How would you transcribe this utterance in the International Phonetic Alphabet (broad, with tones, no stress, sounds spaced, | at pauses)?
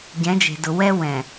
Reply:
ɟ ɛ̃˨˦ d͡ʒ e̤˨ d ʊ˨ w ɛ˦ w ɛ̃˨